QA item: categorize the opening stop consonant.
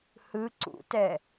click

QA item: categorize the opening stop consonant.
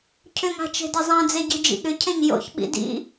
aspirated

